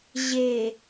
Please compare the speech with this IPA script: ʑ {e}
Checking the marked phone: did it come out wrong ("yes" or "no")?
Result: no